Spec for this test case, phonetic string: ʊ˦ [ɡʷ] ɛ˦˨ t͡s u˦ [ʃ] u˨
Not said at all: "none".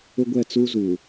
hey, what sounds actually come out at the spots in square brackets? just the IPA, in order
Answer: ɡʷ, z

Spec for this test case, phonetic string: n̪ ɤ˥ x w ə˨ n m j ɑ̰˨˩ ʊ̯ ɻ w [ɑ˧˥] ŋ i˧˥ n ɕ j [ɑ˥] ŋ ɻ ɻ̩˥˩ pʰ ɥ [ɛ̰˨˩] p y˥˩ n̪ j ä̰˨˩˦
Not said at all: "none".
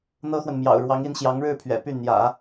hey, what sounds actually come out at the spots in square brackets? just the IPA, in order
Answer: ɑ˧˥, ɑ˧˥, ɛ̰˨˩

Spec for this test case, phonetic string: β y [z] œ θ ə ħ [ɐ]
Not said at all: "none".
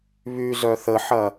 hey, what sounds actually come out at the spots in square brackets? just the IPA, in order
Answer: z, ɐ

